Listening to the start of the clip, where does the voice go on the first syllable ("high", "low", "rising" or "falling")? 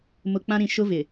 low